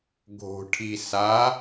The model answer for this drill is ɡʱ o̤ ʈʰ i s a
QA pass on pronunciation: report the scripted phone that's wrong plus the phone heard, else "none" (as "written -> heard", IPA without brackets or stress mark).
none